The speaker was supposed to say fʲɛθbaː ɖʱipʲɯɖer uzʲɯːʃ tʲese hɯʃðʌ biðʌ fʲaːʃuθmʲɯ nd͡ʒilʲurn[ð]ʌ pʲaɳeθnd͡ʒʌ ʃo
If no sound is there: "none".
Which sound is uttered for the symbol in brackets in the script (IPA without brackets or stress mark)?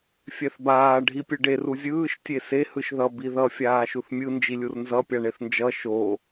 z